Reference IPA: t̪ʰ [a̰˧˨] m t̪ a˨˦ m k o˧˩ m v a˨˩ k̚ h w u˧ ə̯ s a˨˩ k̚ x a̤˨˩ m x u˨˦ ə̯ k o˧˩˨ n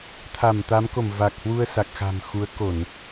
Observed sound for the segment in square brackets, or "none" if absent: a˧˩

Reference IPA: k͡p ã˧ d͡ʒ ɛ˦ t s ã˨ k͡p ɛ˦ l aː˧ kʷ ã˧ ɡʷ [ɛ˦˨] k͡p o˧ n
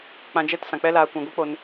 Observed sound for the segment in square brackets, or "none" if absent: ɛ˦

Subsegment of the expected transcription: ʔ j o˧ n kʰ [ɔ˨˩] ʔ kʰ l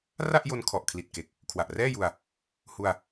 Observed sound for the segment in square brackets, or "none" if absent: ɔ˨˩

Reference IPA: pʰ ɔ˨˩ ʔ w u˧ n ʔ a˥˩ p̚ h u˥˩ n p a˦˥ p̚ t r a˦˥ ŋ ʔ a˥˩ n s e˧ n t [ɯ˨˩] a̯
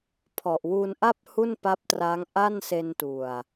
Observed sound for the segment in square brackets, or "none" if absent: u˨˩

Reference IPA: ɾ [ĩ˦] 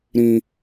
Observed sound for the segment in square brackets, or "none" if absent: ĩ˨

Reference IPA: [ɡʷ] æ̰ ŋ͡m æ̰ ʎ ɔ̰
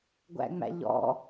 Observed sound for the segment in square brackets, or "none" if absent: ɡʷ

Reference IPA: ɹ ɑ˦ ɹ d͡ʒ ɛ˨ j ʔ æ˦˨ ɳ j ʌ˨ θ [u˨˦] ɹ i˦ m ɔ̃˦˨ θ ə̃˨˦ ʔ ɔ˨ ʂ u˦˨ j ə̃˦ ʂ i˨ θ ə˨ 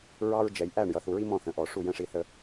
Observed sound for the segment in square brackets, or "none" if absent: u˨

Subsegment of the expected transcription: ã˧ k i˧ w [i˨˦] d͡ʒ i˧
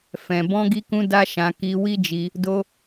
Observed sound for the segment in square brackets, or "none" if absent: i˦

